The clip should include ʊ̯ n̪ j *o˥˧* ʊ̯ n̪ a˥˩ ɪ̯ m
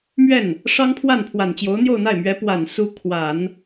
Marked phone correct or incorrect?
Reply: correct